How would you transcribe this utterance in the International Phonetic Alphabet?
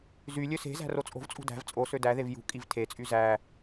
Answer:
z y lʲ ø s e̤ z æ̤ r o t͡sʼ o̤ v t͡sʼ ṳ d æ̤ v t͡sʼ o s ø d æ ð e v j ṳ kʼ i v tʰ e t͡sʼ y z æ

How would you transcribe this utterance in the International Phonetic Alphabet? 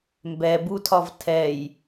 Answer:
m b ɛ b u tʰ ɒ v tʰ ɛ j

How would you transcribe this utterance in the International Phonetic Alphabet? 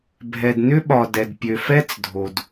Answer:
bʱ ɛ˨ d n ʏ˦ ɓ ɒ˨ d ɛ˨ d pʲ ø˨ f ɛ˦ t͡s dʱ o˨ d

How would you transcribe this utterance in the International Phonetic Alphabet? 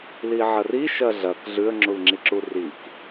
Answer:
l i ʕ ɐ r i ʃ ɐ ɮ ɐ k ɮ ʉ ə̯ ŋ͡ǁ u l ŋ͡ǁ i ǁ u r i k

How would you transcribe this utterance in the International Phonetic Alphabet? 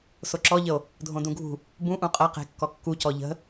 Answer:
s o ǁ ɔ ʎ ə o̯ | dʱ õ d ũ ɡʱ ṳ | b ũ ʔ ũ qʼ ɐ q e̤ kː ɔ kː u c ɔ ʎ ə̤

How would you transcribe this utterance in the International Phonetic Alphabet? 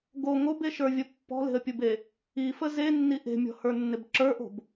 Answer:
ɡ o ŋ o b e ʃ ə˞ vʲ ə pː ɔ̤ l e̤ ə̯ pʲ u b e | i f ə z e nː i ʔ e̤ mʲ ɔ̤ h ə˞ nː ɪ b ǁ ə˞ ʔ o̤ b

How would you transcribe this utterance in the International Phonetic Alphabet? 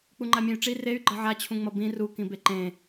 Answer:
k͡p u ŋ͡ǃ a mʲ ẽ y̯ ʈ͡ʂ i r e y̯ ɡ͡ǃ ʌ ʕ a t͡ɕʰ ũ ŋ͡m ʌ b ĩ r u k ĩ b e ǃ ẽ

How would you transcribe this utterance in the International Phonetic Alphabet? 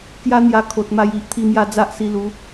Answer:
k j a˦ n̪ j a˧ kʰ o˨ t̚ m a˧ j i˦ ʔ t̪ʰ i˥˧ m j a˥˧ d͡z a˦ ʔ s i˧ l u˨˦

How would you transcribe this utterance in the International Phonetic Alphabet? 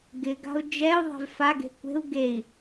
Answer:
ɡ ɪ ɡ a̤ u̯ d͡ʒ ɛ u̯ ðˤ e̤ v f a ɡ e̤ kʷ e̤ u̯ ɡ e i̯

